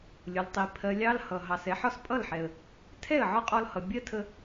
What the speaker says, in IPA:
lʲ ʊ˨ l tˤ i˨ pʰ ɜ˨ lʲ ɑ˧ l h ʌ˨ ɦ ɑ˨ s ɛ˨˦ ħ ɒ˦ s pʼ ʌ˦˨ l ħ ɛ˨ ə̯ | tʰ ɛ˦˨ ə̯ ʕ ɒ˦ qʼ ɔ˧ l h ʌ˨ bʲ ɜ˦ tʰ ə˧

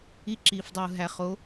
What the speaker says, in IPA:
i˧ ǁ iː˨ f dˤ uː˨ ɦ æ˨ χ o˨˦

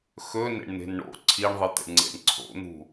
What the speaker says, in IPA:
x ɵ n ḛ ɳ n̪ e̤ n ɳ o̰ ǀʰ i ɳ ðˤ ɨ t̪ ḛ ɳ ŋ͡ǀ ḛ ɳ ǀʰ o̰ n̪ ṳ

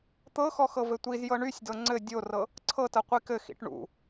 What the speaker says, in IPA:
t̪ ɤ x ɔ x ɤ v ɘ tʷ i z j ɤ ɳ y sʲ d ɤ ŋ͡ǀ ɘ dʲ o r ɤ | ǀʰ ɤ t ɤ qʷ i k ɘ x ḭ ʈ ɳ ṵ

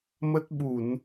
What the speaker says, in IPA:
m ə˦˥ t̚ ɓ u˧˩˨ n

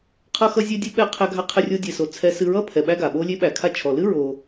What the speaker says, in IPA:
qʰ ʌ˧ x ʌ˧ zʲ ɛ˧ dʲ ɨ˧ ɓ ɛ˧ qʰ æ˥ ɡʱ a˥ qʰ ɛ˥ rʲ o˧ dʲ ɛ˩ s o˩ t͡sʰ ɛ˧ s ɨ˧ ɹ ʌ˥ pʰ ɛ˩ ɓ æ˥ ɡ a˩ ɓ o˥ lʲ e˥ ɓ æ˩ kʰ a˧ t͡ʃʰ ɔ˩ l ɨ˥ ɹ o˧

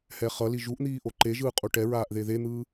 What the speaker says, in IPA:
h ɛ χ ʌ l i ʒ u ʔ n̪ iː ʔ o ǃ e ʒ ɯː qʼ u ʈ ɛ ɹ aː ʔ ð e ð e n̪ ɯː

